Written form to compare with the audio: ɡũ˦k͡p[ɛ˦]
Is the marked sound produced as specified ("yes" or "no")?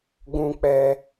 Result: yes